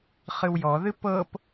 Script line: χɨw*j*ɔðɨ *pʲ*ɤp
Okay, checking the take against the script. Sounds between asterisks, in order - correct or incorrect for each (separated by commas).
correct, incorrect